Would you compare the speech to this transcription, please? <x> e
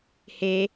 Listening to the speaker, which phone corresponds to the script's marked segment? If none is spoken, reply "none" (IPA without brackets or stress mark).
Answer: h